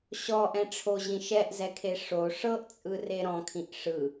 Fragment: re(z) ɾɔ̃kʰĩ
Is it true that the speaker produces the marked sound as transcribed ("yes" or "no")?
no